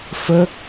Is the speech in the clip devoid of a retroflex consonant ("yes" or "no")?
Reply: yes